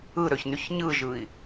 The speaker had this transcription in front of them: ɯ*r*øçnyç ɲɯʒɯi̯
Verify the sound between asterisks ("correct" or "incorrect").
incorrect